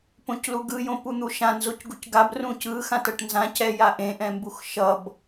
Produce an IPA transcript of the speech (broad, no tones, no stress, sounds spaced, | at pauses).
p õ c l u ɡ ɯ j õ p u n̪ u ʃ ã n z o c ɡ u c ɡ a b r ũ c ɯ x ã t ʌ ʈ n z ã c ɛ j a ʔ ẽ ʔ ɛ̃ m b u x ʃ ʌ b